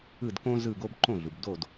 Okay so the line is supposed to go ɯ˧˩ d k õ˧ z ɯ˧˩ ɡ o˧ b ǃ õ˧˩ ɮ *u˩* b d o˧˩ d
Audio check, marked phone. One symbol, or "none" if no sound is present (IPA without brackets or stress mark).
u˩